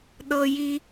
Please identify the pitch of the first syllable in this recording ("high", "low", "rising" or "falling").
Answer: high